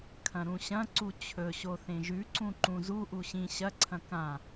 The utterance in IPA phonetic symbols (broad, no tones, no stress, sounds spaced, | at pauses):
kʰ ɐ̃ ɾ ũ ɕ ɐ̃ ǀ u t͡ɕʰ ɵ ɕ o θ ẽ ʒ ʉ ǀ ũ ǃ ũ z u ʔ u ɕ ĩ ɕ ɐ ǀʰ ɐ̃ k ã